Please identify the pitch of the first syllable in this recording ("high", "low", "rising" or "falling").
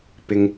low